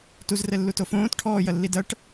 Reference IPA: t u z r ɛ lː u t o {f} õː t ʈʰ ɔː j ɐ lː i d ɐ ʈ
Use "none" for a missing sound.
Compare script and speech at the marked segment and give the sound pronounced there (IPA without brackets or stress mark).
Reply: f